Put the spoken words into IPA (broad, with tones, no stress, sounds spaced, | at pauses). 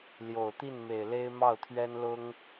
l j o˨˩ ʊ̯ t̪ i˥˩ n m e˨˩ ɪ̯ l e˥ ɪ̯ m ɑ˥˩ ʊ̯ t̪ʰ ɥ ɛ˥ n l ʊ˥ ŋ